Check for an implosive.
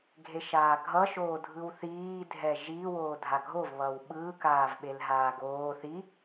present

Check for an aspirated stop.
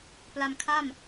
present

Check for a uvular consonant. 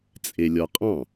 present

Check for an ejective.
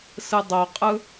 present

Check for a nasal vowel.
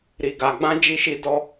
present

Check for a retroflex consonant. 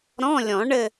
present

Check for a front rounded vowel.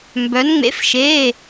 present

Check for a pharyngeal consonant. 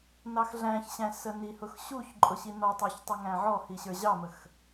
present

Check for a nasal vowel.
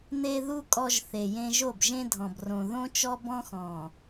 present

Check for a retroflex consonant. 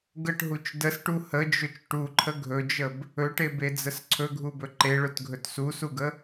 present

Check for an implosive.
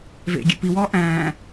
absent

